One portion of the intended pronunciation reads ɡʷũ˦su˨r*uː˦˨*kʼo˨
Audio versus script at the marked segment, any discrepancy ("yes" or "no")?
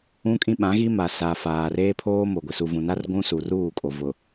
no